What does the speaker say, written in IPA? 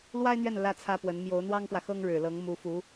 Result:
l w a˥ ɪ̯ n̪ ɥ ɛ˥˩ n l ä˥ t͡sʰ ä˥ p w ə˧˥ n m j o˧˥ ʊ̯ n̪ w ɑ˥ ŋ p w ä˨ x ɤ˥ ŋ ɻ ɻ̩˨˩ l ɤ˧˥ ŋ m u˧˥ f u˧˥

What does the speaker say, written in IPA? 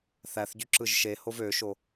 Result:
θ æ θ ɟ y ǁ ɯ ʒ ʃ e h o v ø ʃ o

